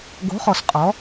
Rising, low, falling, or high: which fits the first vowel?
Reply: rising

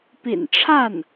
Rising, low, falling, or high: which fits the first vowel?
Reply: low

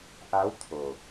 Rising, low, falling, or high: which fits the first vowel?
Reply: rising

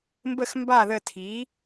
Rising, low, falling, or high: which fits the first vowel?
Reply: falling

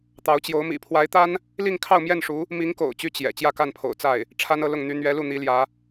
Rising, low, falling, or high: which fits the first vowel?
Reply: rising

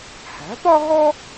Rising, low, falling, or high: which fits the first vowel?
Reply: rising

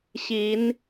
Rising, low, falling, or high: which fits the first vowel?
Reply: rising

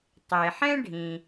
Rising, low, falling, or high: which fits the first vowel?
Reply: low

